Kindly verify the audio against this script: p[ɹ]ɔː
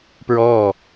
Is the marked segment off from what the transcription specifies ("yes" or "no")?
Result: no